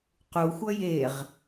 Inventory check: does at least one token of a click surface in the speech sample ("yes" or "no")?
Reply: no